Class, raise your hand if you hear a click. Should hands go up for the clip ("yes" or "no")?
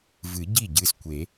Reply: no